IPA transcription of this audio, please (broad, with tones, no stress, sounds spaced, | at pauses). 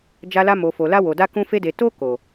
d͡ʒ a˧ l a˧ m o˨ f o˨ l a˧ w o˨ d a˧ k ũ˧ f e˧ d e˨ t o˧ k o˨